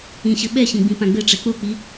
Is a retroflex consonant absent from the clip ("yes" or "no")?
no